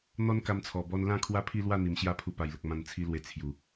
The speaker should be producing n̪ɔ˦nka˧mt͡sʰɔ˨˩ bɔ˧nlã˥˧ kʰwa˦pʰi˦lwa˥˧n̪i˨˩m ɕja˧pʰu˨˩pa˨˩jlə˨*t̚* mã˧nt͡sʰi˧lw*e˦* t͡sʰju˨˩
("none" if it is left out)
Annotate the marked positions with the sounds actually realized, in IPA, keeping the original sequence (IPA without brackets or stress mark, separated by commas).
k̚, e˧